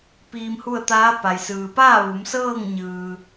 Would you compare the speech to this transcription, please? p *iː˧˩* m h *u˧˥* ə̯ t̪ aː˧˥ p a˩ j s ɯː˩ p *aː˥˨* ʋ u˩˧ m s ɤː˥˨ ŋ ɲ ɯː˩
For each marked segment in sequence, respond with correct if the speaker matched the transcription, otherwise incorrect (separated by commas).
incorrect, incorrect, correct